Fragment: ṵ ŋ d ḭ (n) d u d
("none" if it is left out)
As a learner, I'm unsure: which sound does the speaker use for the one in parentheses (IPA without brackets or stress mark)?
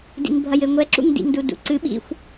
ŋ